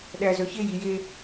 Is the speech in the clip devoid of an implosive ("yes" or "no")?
no